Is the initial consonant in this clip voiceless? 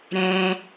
no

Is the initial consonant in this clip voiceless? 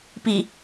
yes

